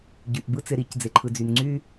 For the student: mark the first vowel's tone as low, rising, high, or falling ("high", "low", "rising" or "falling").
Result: low